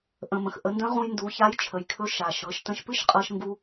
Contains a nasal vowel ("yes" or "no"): yes